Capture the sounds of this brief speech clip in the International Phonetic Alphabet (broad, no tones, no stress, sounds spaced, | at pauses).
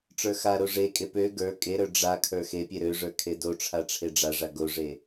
ʈ͡ʂ ə˞ x a ɾ o ʐ e kʼ e p ø ɡ ə˞ kʼ e ɾ ə˞ ɖ͡ʐ a kʰ ə˞ x e pʲ e ɾ ø ʐ ə˞ kʰ e d o ʈ͡ʂʰ a ʈ͡ʂʰ e ɖ͡ʐ a ʐ a ɡ o ʐ e